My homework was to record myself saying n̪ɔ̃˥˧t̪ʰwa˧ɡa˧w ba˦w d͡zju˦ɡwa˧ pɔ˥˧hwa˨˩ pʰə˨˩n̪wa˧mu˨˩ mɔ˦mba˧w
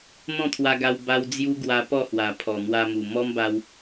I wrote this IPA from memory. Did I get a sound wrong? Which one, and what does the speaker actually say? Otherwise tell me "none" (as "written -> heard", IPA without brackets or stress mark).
ə˨˩ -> ɔ˨˩